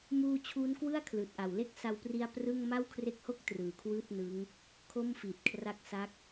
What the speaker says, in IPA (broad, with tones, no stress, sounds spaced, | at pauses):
m uː˧ t͡ɕʰ uː˦˥ n k w ɯ˥˩ a̯ kʰ l ɯː˨˩ t̚ ʔ a˨˩ w l e˥˩ k̚ s a˧ w p r i˧ a̯ p r ɯ˥˩ ŋ m a˥˩ w kʰ r e˦˥ k̚ h o˥˩ k̚ t r ɯː˩˦ kʰ w ɯː˥˩ t̚ n ɯ˦˥ ŋ | kʰ o˥˩ m f iː˨˩ t̚ kʰ r a˦˥ k̚ s a˦˥ k̚